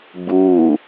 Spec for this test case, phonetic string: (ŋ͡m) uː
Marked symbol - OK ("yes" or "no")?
no